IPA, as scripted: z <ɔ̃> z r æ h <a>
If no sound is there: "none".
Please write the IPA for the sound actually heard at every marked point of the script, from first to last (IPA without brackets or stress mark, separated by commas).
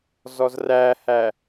ɔ, æ